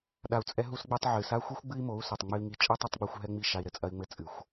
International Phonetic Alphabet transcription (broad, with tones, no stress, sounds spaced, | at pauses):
ɗ a˧ u̯ t͡sʼ ɛ˦ ɦ u˦ s ɡ͡b e˦ tˤ ʕ ɨ˨ s a˦ xʷ ɨ˦ xʷ ɡ͡b ɨ˦ i̯ m o˨˦ u̯ s ɛ˨ tˤ ŋ͡m ɨ˧ i̯ ŋ i˧ t͡ʃʼ ɛ˦ tˤ ɐ˦ tˤ ɡ͡b u˧ xʷ ɦ ɛ˦ ŋ͡m i˦˨ ʃ a˧ i̯ ɾ ɘ˨ t͡sʼ ɐ˦ i̯ ŋ͡m ɘ˦ t͡sʼ ɨ˨ xʷ